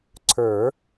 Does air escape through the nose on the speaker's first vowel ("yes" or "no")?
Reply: no